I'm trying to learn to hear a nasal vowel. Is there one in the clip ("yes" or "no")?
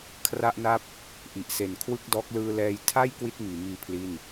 no